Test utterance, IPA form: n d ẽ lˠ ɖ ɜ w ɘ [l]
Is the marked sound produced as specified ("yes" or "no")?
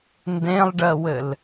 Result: yes